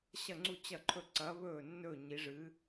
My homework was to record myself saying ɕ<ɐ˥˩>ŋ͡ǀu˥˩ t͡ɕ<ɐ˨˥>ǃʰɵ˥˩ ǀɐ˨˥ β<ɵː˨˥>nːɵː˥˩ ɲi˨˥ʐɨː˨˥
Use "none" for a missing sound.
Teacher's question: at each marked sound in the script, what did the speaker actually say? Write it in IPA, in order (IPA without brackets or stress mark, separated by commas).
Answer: ɐ˥˩, ɐ˥˩, ɵː˥˩